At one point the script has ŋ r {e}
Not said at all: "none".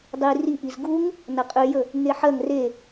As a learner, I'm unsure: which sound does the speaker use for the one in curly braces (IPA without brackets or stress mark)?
e